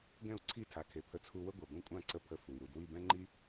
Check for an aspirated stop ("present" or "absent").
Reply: present